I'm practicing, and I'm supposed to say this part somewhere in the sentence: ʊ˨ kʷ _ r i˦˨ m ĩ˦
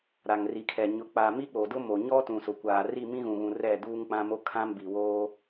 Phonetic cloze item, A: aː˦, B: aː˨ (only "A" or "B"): B